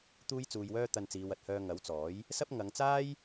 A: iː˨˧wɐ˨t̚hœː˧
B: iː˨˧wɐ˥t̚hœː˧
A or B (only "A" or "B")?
A